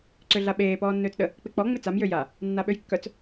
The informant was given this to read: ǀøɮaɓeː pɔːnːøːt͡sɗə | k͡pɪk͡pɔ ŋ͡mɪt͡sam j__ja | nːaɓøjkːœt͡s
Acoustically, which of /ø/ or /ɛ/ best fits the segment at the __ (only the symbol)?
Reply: ø